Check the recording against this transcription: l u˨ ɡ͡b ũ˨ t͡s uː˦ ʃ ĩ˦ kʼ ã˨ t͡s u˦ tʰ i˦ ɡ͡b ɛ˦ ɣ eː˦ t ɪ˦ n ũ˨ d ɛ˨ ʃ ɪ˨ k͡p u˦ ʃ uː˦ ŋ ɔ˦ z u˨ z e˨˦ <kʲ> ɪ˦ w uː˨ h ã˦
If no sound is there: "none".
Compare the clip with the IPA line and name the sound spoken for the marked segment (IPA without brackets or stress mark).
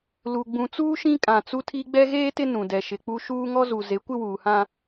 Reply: kʷ